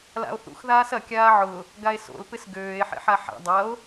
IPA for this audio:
la̰o̯θṵx ðaːsɐ kʲaːʕʊ | ɡae̯so̰l pɪsɡøːe̯ ħḛħaħa̰ dˤɐo̯

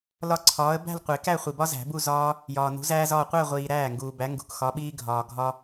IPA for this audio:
lɒ˥˧ǀʰɒː˨˥ə̯ bæ̤˥˧l qʷe˨˩˦kæ˥˧χʷi˨bɒ˥ zæ̤˨˩˦bu˥˧zɒː˥ | jɒː˨nṳ˨˥zæː˥zɒː˥˧ qʷæ˥˧ʁʷiː˨ ɾæː˥˩ŋɡuː˨bæ˨˥ ŋɡṳ˨kxɒ˨˥ɓiː˥ɡʱɒː˨ ɡʱɒ˥

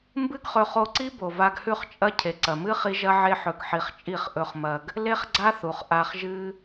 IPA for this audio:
mbɨ˦ɡχɵ˧χo˧ǀi˦ bo˨va˧ɡhʉ˦˨χt͡ʃʼɐ˦ cʰe˨ǀɐ˨mɨ˦ χi˦ʒɐ˦ʕe˦ħɵ˧ɡ ħi˧χt͡ʃʼi˦˨χ ʔɵ˧χmɐ˧ɡ | le˦χɡ͡ǀa˦θu˨χ ʔa˧χʒɨ˦

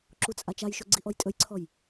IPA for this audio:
ǁut͡sʼat͡ʃajʃɵ ɡ͡ǀiʔɔjtʼɵjǀʰɔj

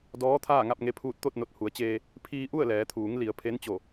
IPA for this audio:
dɔː˧˥t̪ʰaː˥˨ ŋa˥˨p̚ŋe˧pʰuː˧t̚ t̪o˥˨t̚no˧˩t̚hu˩˧ə̯t͡ɕeː˧ | pʰiː˧ʔu˥˨ə̯ lɛː˩˧t̪ʰuː˩˧ŋ li˩˧ə̯pʰe˧˥nt͡ɕo˧˩

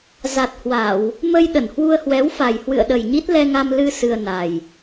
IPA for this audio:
za˨˩t̚hwa˧˩˨w | mə˧j ɗə˧˩nhwu˧ə̯hwɛ˨˦wfa˨˩j hwɨ̰˧˨ə̯ɗə˨˩jɲi˦˥t̚ lɛ˧ŋa˧mlɨ˧ sɨ˧ə̯na˨˩j

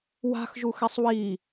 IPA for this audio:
wa̤xʒuxɛsˤ wi

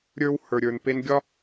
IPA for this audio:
ɾʲə˞˦w hə˞˧ɾʲə˞˧n pe˧nɡʲɒ˦

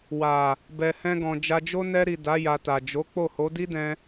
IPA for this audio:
wa˨ | bɛ˨hɛ̃˧ɡɔ̃˨ d͡ʒa˧d͡ʒo˦ nɛ˧ɾi˨ da˨˦ ja˧ta˨ d͡ʒo˨˦ k͡po˦˨ho˨˦ di˦dɛ̃˧

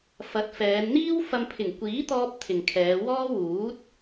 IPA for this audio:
fɐ˨˥t̚fɛː˨˧n n̪iː˥wfɐ˧m pʰɪ˨˩ŋkʷiː˨˥t̪ɔː˧p̚ t̪ʰɪ˨ŋkʰɛː˨˧wɔː˥ wuː˨˥t̚

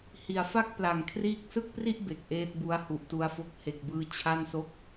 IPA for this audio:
hi˩˦a̯fa˥˩k̚ pla˨˩ŋkʰriː˥˩k̚ sɯ˥˩k̚pri˥˩ʔ be˨˩k̚ʔeː˦˥t̚bu˦˥a̯ hu˨˩ʔtu˧a̯fo˦˥k̚ he˨˩k̚bɯː˧ t͡ɕʰa˥˩nso˥˩k̚

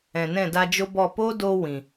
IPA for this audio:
ɛ̃˨ nɛ̃˦˨da˧d͡ʒo˦bɔ˦˨ po˦do˧ wĩ˨

